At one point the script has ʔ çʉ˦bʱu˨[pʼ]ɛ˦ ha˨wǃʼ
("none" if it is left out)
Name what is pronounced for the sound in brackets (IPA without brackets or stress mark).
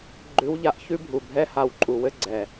bʱ